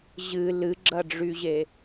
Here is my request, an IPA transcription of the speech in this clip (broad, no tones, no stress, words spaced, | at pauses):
ʑɨ lɨɡ͡ǁɐɖ͡ʐyʑe